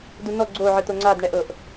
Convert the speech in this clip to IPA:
dunɔ ɡ͡ǀo ʕɯt̪oŋ͡ǀad ɳɛʔɤʔ

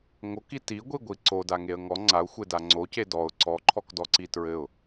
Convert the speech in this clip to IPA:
ŋoki tiɡʷiɡʷi ǀodaŋeə̯ ŋɔ ŋ͡ǀaʊ̯xʷeda ŋ͡ǀoce dɔʊ̯ ǀɔǃʰɔkdɔǀi tɹɘʊ̯

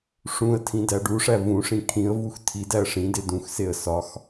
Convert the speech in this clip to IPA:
ʂũə̯tʰĩ dæɖuʂæ vũʂĩ kʰĩə̯vux tʰidæə̯ ʂĩde dũxseə̯ sɒx

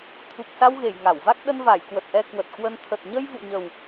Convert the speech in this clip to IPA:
t̪ʰu˨˩k̚sa˧wɣe˧˩j ŋa˧˩wva˦˥k̚ ɗə˧nva˧˩jkwə˨˩t̚ ʔɛ˧kwə˨˩t̚kwə˧n t̪ʰə˨˩t̚ɲə˧jvṵ˧˨ɲə˨˩w

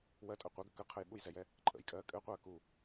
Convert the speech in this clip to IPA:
wɜtʼɜ qʷɘɡə kəqʰəj ɓujzɛjɛ | ǃʼə̰jkʼɜː kʼɘqʷɜː ku

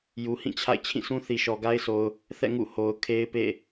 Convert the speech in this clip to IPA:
ju˨ hĩ˦˨t͡ɕʰa̰˦˨ɪ̯ t͡ɕʰĩ˦˨sũ˦ θi˨ʃɔ˨ ɡa˦ɪ̯so˨ʊ̯ | θɛ̰˦˨ ŋṵ˦˨ho˨ʊ̯ kʰe˦ɪ̯pḛ˦˨

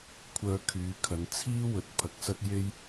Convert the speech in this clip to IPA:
kʷʰœː˧ kʰyː˨˧kʰɐ˨˧n t͡sʰiː˥wɵ˨˥t̚ pʰɐ˨˥k̚sɐ˥t̚je˥j

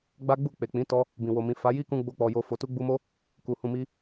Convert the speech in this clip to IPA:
ɡ͡ba˦ɡ͡bu˦˨ k͡pe˨k͡pĩ˨˦ tɔ˧ | bĩ˨wo˨mĩ˨ fa˨˦ ji˦kũ˧ ɡ͡bo˦k͡pɔ˧jo˧ fo˨tu˧ɡ͡bu˧mo˦ | ku˨ hũ˨mi˧

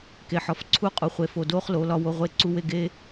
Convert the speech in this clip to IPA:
ke˨ħɒ˨fǀʰu˦qʼu˨ χʷe˨ fo˨do˦χlo˨˦ lɒ˦wo˦ʁʷe˦ ǀu˦we˦˨ ɡe˦

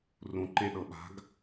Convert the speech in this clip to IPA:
rũǃẽɗɤɓa̤ɡ

